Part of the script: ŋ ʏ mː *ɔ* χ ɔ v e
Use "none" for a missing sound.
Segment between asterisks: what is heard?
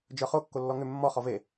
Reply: ɔ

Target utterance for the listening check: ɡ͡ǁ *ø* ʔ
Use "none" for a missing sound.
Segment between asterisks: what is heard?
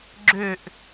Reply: ø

